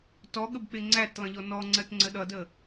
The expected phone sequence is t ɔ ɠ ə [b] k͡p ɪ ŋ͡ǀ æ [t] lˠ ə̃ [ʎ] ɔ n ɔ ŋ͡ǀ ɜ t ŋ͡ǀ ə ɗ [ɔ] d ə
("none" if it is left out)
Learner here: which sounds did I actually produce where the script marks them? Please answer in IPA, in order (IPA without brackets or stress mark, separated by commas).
b, t, ʎ, ʌ